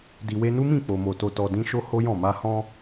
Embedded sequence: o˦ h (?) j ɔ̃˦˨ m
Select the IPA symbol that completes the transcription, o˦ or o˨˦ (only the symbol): o˦